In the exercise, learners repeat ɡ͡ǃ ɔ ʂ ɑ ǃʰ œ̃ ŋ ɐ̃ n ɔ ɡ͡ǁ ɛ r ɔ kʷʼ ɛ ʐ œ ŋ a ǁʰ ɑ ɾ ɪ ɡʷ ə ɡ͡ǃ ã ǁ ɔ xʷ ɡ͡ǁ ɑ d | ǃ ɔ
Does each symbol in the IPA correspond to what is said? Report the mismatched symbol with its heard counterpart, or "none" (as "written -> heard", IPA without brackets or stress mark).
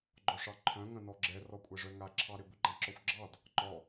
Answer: none